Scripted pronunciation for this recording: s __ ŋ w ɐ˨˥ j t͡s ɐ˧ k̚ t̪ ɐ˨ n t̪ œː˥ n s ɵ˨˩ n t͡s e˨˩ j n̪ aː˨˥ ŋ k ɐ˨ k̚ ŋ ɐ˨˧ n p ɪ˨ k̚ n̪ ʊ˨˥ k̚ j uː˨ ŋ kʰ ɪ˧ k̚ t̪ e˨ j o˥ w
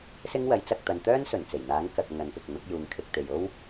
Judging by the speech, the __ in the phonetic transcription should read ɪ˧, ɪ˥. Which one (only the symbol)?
ɪ˥